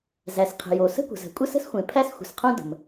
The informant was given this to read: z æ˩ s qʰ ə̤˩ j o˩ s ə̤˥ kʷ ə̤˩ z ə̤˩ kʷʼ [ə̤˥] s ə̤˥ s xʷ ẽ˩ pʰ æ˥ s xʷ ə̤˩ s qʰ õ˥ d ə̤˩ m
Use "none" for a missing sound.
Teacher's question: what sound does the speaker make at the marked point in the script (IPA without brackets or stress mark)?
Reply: ə˥